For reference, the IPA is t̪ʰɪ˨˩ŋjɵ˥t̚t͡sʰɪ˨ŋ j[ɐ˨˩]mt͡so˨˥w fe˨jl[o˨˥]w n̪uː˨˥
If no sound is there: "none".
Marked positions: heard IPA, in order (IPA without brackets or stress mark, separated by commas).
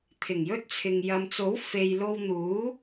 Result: ɐ˨, o˧